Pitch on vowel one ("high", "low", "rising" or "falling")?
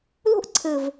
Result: high